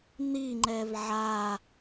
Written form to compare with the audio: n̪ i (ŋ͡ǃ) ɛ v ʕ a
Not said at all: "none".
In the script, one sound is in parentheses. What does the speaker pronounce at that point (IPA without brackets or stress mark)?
ŋ͡ǃ